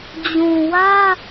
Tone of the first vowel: low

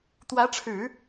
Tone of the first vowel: rising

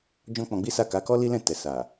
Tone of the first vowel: high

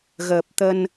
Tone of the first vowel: low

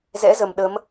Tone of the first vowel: rising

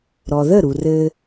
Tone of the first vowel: low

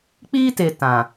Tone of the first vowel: high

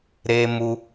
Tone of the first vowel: high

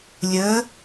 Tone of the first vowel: rising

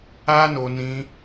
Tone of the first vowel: high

